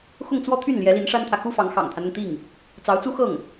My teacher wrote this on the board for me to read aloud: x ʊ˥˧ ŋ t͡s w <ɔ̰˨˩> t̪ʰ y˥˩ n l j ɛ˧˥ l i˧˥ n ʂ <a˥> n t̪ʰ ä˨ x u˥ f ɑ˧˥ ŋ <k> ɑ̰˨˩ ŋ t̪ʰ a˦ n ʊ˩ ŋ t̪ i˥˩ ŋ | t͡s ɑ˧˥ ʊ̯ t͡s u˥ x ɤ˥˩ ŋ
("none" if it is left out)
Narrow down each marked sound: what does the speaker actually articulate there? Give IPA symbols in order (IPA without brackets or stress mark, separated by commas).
ɔ˥˧, a˥, x